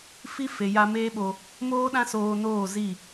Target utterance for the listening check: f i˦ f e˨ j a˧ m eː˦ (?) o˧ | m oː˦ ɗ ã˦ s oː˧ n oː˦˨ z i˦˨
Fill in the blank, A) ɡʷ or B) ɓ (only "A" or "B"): B